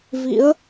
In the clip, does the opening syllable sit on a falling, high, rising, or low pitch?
rising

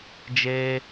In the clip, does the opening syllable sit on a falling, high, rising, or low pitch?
high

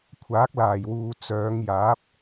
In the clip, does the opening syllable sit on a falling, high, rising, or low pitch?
rising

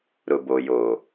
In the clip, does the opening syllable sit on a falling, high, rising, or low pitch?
low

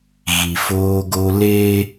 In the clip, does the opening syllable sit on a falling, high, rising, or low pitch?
low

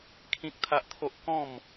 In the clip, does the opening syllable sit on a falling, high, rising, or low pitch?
high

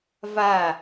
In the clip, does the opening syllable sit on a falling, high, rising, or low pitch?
falling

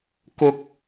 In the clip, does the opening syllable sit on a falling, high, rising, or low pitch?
high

